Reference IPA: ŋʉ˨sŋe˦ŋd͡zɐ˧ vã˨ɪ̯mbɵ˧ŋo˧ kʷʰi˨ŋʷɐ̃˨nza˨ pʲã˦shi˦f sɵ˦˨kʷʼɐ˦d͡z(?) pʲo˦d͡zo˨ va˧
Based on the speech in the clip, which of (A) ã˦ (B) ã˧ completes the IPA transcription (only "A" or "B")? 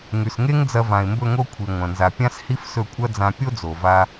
B